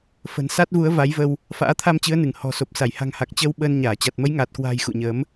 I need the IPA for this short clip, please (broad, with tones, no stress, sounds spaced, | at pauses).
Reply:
f ə̤˨˩ n s a˦˥ t̚ v u˨˦ ə̯ v a˨˦ j v ə˧ w | f a̰ː˧˥ t̪ʰ a˧ m t͡ɕ ɨ˨˦ ə̯ n ɨ˧˩ ŋ h ɔ̤˨˩ s o˨˩ p̚ s a˧˩ j h a̤˨˩ ŋ h a˨˩ k̚ t͡ɕ əː˧ w ɓ əː˧ n ɲ aː˧˩ t͡ɕ a˨˩ t̚ m ə˨˦ j ŋ aː˨˩ t̚ k w a̤ː˨˩ j x ṵ˧˨ ɲ əː˨˦ m